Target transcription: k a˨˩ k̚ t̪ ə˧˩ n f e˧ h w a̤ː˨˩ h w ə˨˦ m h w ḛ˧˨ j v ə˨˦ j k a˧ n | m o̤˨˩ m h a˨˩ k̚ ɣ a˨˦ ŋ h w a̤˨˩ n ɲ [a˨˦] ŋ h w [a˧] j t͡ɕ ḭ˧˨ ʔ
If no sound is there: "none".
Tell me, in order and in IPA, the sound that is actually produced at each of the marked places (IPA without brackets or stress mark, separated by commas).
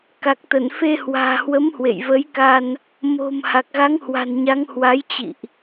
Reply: a˨˦, a˨˦